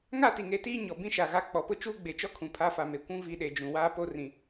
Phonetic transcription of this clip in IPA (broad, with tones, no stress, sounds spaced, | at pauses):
ŋ a˦˨ t i˨ ŋ e˨ t iː˦ ɲ ɔ˨ b ĩ˦ ʃ a˨ ɣ a˦ k͡p ɔ˨ p ʊ˦ t͡ʃ uː˦ ɡ͡b e˨ t͡ʃ ɔ˦ kʰ ũ˨ pʰ a˦ f a˨ m e˨ kʷ ũ˦ v i˦ ɗ e˨ d͡ʒ ũ˨ w aː˦ p o˦ r ĩ˨